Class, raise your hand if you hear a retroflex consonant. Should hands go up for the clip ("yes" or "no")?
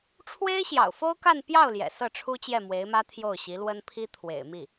yes